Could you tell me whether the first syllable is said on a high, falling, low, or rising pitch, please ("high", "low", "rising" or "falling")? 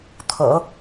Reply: low